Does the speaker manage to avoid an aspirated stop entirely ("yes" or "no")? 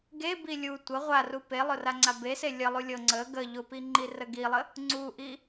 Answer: yes